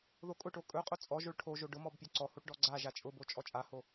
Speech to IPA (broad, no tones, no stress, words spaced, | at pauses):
ðokʼʊʈo kʼɵqʼʊ t͡sʼɔ ʒoɭʈʰoʒo ɖʊ mɔbpʲɔǀɔhoʈ ɖɔɡ͡ǀaʒa t͡ʃʼʊbo t͡ʃʼɔt͡ʃʼaho